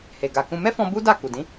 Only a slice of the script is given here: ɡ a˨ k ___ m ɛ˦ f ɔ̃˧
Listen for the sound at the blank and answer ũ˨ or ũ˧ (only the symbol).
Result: ũ˧